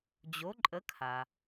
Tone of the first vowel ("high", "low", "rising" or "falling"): rising